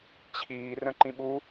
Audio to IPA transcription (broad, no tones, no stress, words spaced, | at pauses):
t͡ɕʰiː rə̃ǃĩɓu